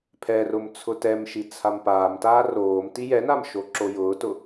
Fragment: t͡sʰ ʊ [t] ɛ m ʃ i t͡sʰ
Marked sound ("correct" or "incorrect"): correct